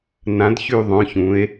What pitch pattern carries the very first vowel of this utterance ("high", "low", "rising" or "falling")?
rising